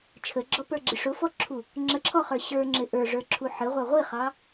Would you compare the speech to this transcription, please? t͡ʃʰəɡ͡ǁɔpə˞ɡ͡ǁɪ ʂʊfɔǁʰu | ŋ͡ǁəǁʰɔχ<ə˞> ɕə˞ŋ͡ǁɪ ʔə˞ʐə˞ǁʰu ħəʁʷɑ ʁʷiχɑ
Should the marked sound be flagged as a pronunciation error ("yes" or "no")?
no